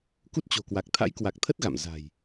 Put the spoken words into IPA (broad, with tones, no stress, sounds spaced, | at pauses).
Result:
k u˦˥ t̚ t͡ɕ o̤˨˩ k w a˨˩ k̚ t̪ʰ a̰˧˥ j k w a˨˩ k̚ t̪ʰ ə˦˥ t̚ ɣ a̰˧˨ m z a̤˨˩ j